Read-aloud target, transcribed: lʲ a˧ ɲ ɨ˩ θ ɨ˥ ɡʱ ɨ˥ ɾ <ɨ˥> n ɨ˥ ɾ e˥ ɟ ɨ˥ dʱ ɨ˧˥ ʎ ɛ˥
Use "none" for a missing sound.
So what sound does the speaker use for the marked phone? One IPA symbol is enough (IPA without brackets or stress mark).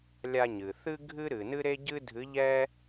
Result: ɨ˩